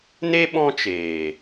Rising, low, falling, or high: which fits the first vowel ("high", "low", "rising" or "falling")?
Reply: high